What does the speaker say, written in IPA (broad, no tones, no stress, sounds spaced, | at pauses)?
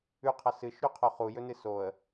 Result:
ʉ qʰ ɐ s ɨ ʃ ɾ ʉ qʰ o χ u j ɵ n ɨ s o ə̯